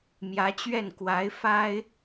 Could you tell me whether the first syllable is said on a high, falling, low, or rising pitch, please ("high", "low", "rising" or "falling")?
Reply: rising